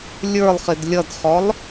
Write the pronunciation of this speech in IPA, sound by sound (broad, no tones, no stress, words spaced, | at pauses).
lʲə˞lˠχɪd lʲʌdχɔlˠ